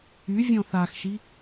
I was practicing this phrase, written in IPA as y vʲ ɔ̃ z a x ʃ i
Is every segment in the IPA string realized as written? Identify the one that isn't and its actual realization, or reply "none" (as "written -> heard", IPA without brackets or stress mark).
z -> θ